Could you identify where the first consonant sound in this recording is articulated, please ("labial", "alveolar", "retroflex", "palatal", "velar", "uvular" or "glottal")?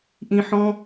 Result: glottal